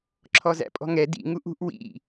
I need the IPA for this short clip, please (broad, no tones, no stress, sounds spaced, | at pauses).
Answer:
ǁʰ ɔ z æ̰ pʼ ɔ̤ ŋ ɛ d ḭ ŋ u ʔ ṳ ʔ w ḭ